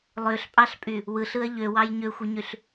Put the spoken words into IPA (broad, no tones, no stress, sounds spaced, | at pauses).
lˠ ø ɬ pʼ ɑ ɬ pʼ y | w ɯ ɬ ɯ ɐ̯ ʎ ø w ɑ j ɲ ø xʷ i ɲ y ɬ